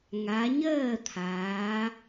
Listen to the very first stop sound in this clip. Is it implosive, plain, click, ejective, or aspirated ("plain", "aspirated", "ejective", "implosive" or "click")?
aspirated